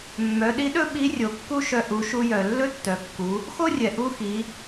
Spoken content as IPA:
mː œ˩˧ ɗ i˧˥ ɗ ɵ˥ ɓ i˧˥ rʲ o˩ kː u˥ ʃ œ˧ ʔ u˩˧ ʃ u˧ j œ˩ lː ɵ˥ tː œ˩˧ kː u˩˧ | x o˥ rʲ ɛ˩ ʔ u˧˥ x i˩˧

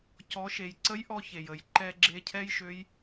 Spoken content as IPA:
c ɔ˩˧ ʃ e˩ j ǀ ə˧˥ j ʔ ɔ˧ ç e˩ j ə˩ j ǃ ɛ˧ ɡ͡ǁ e˧ cʰ ɛ˥ j ʃ ø˧˥ j

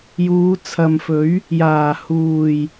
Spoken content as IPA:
j uː˨˧ t͡sʰ ɐ˨ m f ɵ˨˥ ɥ | j aː˨˩ h uː˨˩ j

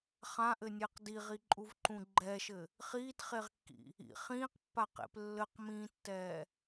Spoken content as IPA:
χ ã ʔ ɘ nʲ ɛ q d i ʁ i ǃʼ u v ǃ ũ ɡ͡ǃ ɛ ʃ ɘ | χ iː t χ e ʁ kː ḭ | ḭ χ ĩː q pː a q ḛ p lː ɘ q m ĩː tː ɛː

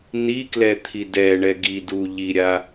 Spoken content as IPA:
n i k l ɛ t̪ʰ i d ɛ ɳ ɛ ɡ i d u ʎ i ɾʲ a

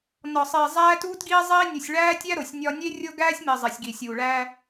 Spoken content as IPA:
n ɒ˨ sˤ iː˨ zˤ æː˦ t uː˦ t ɡ iː˦ zˤ iː˦ nʲ u˨ sʲ ɭ æː˦ tʲ æ˦ ɾ o˨ sʲ nʲ ɒ˦ nʲ e˦ rʲ o˦ ɡ æː˦ sʲ m i˨ zˤ e˨ sʲ ɡ iː˨ sʲ uː˨ ɭ æː˦

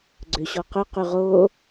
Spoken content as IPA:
ɡ͡ǀ ø ɕ ɔ q ɵ q y ʁ o

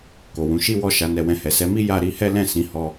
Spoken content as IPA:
k o˨ w ũ˨˦ ʃ i˦ w ɔ˦˨ ʃ a˧ n ɛ˧ w ɛ̃˧ h ɛ˨ s ɛ˨˦ m i˦ j a˦ ɾ i˦ h ɛ˦ l ɛ̃˦˨ s ĩ˨˦ h ɔ˦

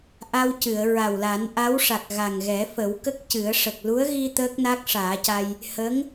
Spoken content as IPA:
ʔ a˧ w c ɨ˨˩˨ ə̯ ɹ a˨˩ w l a˨˩˦ n ʔ a˧˥ w ʂ a˨˩ k̚ ɣ a˨˩ ŋ ɣ ɛ˨˩˦ f ə˨˩˦ w k ə˦˥ k̚ c ɨ˨˩˦ ə̯ ʂ ə˨˩ k̚ l u˧˥ ə̯ ɣ i˧ t̪ əː˦˥ k̚ n a˦˥ k̚ ʂ aː˨˩˦ c a˧ j | h ə˧˥ ŋ

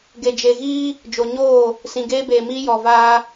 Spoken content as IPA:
ɡ e˨ d͡ʒ e˨ ɣ iː˦ | d͡ʒ o˨ ɲ oː˦˨ | s ĩ˨ ɡ eː˦ b eː˨ m iː˦ j ɔ˨ v aː˦

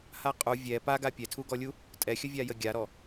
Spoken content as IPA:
h a qʼ u vʲ ɛ p a ɡ a pʲ ɛ tʰ u ɡ ɔ lʲ u | tʼ ɛ xʲ ə vʲ a j ə ɡʲ a ɾ ɔ

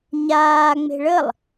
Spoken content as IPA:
ɲ aː ŋ͡m e̤ ɭ ə lˠ

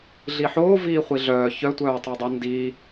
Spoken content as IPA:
ɮ i ħ oː v iː χʷ i ɮ œː ç œ tʷ œː tˤ i dˤ o n d i

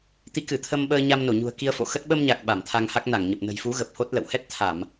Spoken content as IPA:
t̪ i˨˦ k ɨ˧˩ t̪ʰ ə˧ m ɓ əː˧ ɲ a˧ m n o˧˩ ɲ ṳ˨˩ ə̯ k i˧ ə̯ f o̰˧˨ x ə˦˥ t̚ ɓ ə˧ m ɲ a˨˩ k̚ ɓ a˧˩ m t̪ʰ a˧ ŋ h a˦˥ k̚ n a˧˩ ŋ ɲ ə˨˩ p̚ n ə̤˨˩ j f u˨˦ ɣ ə˨˩ p̚ h o˦˥ t̚ l ə̰˧˨ w h ɛ˦˥ t̚ t̪ʰ a˧˩˨ m

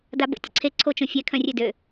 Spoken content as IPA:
d a b ə̰ tʲ ə̰ ǀʰ e ǀʰ o t͡ʃ õ fʲ ɛ kʰ œ̃ rʲ ø d ø

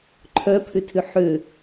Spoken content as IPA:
ǃʰ œ pʰ ʏ tʰ ʏ ħ ø

